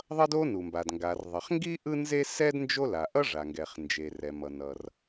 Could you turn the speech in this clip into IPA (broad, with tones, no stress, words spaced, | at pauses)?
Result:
ðˤʌ˥do˥nu˩mba˩d ŋɡa˩rðˤʌ˩χŋɡi˥ ʔɯ˥nze˥ sɛ˥d nd͡ʒo˥ la˩ ʔʌ˥ ʐa˩ŋɡɛ˩χ nd͡ʒe˩rɛ˩mʌ˩ nʌ˩r